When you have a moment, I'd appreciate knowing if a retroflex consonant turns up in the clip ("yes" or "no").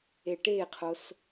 yes